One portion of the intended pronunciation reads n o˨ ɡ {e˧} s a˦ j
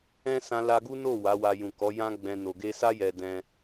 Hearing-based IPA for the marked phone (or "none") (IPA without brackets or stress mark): e˧